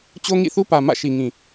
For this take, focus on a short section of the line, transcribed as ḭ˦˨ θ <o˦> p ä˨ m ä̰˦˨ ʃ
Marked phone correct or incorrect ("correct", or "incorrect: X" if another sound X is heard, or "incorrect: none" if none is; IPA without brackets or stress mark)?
incorrect: u˦